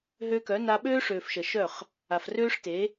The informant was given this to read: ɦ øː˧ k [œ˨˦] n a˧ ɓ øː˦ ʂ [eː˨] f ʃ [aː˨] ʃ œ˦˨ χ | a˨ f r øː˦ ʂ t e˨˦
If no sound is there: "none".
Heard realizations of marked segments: œ˨˦, øː˨, əː˨

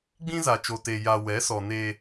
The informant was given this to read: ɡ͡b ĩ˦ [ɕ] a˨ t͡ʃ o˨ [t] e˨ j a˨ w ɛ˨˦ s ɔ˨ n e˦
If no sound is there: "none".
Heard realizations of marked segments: z, t

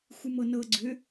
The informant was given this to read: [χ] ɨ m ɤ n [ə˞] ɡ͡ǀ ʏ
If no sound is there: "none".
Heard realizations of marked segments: xʷ, ɤ

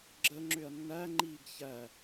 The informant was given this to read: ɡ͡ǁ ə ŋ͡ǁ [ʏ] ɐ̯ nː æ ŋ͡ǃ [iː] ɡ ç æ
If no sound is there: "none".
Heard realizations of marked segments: ʏ, iː

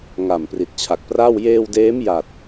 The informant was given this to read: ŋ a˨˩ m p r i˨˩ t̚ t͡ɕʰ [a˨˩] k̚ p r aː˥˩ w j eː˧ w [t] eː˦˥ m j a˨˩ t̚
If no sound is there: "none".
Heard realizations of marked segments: a˨˩, d

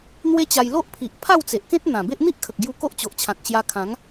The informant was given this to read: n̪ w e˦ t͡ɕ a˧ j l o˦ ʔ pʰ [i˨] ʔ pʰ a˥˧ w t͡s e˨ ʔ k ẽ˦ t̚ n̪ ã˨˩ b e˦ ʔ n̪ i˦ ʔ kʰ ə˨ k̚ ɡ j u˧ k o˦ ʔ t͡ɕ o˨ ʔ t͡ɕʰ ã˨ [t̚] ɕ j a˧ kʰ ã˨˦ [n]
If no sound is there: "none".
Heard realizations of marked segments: i˨, k̚, ŋ

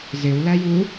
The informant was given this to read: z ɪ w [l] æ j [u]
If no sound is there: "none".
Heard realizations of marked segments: l, u

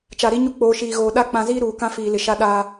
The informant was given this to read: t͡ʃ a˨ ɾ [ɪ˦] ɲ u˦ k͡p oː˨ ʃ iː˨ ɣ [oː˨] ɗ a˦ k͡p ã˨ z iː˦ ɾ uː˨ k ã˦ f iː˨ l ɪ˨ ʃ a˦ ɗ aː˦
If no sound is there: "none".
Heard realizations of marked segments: i˦, oː˨

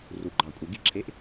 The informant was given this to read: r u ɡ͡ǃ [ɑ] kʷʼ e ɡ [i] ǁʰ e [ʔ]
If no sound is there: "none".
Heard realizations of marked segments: ɑ, i, ʔ

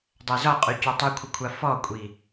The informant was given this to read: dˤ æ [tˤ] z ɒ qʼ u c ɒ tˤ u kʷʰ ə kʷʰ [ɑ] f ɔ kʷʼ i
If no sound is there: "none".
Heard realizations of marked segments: none, a

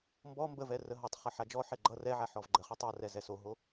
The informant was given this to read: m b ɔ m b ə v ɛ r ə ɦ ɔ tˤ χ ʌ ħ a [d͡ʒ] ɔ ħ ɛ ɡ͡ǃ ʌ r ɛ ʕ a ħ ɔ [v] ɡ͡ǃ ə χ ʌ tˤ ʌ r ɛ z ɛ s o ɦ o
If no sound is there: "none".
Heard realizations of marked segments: d͡ʒ, v

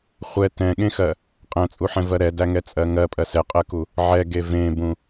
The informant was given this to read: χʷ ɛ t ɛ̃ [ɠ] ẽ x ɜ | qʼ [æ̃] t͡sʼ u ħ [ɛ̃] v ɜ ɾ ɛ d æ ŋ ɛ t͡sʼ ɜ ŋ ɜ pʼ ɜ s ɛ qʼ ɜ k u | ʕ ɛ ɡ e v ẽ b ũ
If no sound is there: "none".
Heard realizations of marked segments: ɠ, æ̃, ɛ̃

